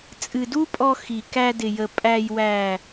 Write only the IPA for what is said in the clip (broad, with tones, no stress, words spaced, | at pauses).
t͡sʼɨ˨du˦pʼɔ˧ xi˨kæ˧dɪ˨jə˨ pʼæ˨jwæ˨